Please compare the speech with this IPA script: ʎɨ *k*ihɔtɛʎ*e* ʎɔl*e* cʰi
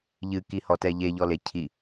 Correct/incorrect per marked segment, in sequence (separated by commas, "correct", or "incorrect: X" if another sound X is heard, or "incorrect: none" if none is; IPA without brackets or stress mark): correct, correct, correct